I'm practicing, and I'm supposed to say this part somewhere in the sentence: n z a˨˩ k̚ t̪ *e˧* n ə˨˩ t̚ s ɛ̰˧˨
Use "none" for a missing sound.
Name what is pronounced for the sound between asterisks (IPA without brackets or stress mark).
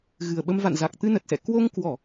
ɨ˧